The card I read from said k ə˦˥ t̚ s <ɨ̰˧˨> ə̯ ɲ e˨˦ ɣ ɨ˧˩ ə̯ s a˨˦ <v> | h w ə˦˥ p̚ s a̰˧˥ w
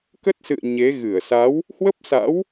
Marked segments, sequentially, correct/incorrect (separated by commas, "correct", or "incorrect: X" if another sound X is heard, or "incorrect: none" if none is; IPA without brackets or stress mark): correct, incorrect: w